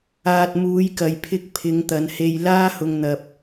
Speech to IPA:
aː˨ t̚ m uː˨˧ j k ɐ˨ j pʰ ɪ˧ k̚ pʰ ɪ˨˧ ŋ t̪ ɐ˨˧ n h e˧ j l aː˥ h ʊ˧ ŋ n̪ ɐ˧ p̚

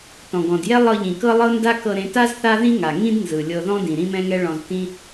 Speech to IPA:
t ɔ̃˩ ɡ ɔ̃˩ d j ɛ˥ lˠ ɤ˧ ʎ ĩ˩ k ɤ˥ lˠ ɤ˥ n d a˥ k ɤ˧ ɾ ẽ˧ t a˥ z θ a˥ ð ĩ˥ ŋ a˩ ŋ ĩ˥ d n z ɯ˩ lʲ ɤ˧ ð ɔ̃˥ d ĩ˩ ɾ ĩ˥ m ɛ̃˥ ŋ ɛ˥ ɭ ɔ̃˧ z t ĩ˥

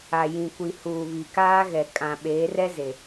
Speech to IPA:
a˨ j ĩ˨ kʷ i˨ h uː˨ β i˨ k aː˦ ɣ ɛ˨ kʼ ã˨ ɓ eː˨˦ r ɛ˦ z e˨

